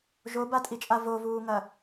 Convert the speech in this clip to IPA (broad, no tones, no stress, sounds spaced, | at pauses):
ʒ o b a tʼ i t͡ʃʼ a v o v uː ŋ ɐ